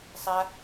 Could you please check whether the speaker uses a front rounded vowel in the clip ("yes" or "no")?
no